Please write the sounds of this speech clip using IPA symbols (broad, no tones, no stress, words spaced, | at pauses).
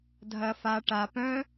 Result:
dʱɐ fa ʈa pœ̃